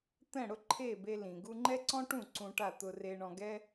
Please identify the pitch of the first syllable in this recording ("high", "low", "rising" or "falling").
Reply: falling